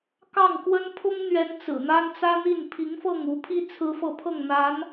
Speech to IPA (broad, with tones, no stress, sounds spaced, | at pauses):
k ɑ˥˩ ŋ k w ə˥ n pʰ ʊ˥ ŋ n̪ ɥ ɛ˧˥ n t͡s ɹ̩˨˩ n̪ a˥ n t͡s ä˥ n̪ i˥˩ n pʰ i˧˥ ŋ f ɤ˥˩ ŋ u˧˥ pʰ i˥ t͡sʰ ɹ̩˥ f ɤ˥˧ pʰ ɤ˥˩ ŋ n̪ a˧˥ n